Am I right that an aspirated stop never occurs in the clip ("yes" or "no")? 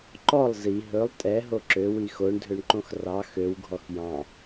yes